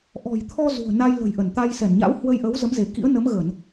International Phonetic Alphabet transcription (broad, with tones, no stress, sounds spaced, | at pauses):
ʔ ɔ̤˨˩ j t̪ʰ ɔ˧ z ṳ˨˩ ə̯ n a˧ j l ə̤˨˩ j ʔ ə˧˩ n t̪ a˧ j s ɛ˧˩ n ɲ a̰˧˥ w h w ə˧ j ʔ ə˨˦ w z ə˨˦ m z e˧˩ k ḭ˧˥ ə̯ n ə˨˦ m ɣ ə˧˩˨ n